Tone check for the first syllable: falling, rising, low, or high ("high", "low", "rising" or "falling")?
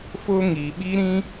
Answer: high